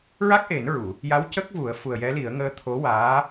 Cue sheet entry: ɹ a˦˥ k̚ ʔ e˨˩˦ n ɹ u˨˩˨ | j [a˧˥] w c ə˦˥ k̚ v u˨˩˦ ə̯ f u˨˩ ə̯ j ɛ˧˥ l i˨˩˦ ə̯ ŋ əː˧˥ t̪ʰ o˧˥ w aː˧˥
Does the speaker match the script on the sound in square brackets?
yes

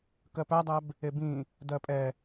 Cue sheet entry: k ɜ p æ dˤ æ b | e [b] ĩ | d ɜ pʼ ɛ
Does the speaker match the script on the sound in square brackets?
yes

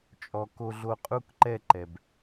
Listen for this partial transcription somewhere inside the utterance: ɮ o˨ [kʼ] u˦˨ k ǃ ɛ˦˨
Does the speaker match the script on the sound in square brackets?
no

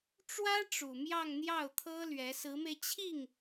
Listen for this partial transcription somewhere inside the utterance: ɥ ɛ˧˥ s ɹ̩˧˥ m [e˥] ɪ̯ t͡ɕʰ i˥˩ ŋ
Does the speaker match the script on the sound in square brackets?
no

